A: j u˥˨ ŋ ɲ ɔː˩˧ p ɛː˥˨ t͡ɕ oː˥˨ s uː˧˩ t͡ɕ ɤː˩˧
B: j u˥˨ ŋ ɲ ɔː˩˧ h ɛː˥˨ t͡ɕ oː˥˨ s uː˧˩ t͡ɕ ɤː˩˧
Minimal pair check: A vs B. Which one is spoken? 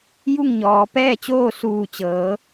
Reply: A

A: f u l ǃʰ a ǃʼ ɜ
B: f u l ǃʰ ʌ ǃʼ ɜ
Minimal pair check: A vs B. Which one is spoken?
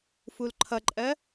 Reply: B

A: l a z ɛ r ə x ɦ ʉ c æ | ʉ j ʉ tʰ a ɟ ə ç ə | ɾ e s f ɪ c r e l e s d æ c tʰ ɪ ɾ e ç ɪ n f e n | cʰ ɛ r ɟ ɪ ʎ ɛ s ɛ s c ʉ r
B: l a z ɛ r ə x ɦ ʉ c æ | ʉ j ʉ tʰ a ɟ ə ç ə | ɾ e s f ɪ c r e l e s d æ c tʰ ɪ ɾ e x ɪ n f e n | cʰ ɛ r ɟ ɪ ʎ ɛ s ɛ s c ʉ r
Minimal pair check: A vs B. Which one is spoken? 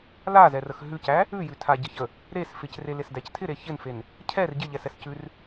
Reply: A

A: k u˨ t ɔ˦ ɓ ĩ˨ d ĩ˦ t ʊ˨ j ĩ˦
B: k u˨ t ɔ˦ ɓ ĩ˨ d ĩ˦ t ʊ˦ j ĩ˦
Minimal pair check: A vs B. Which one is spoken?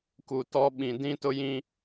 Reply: B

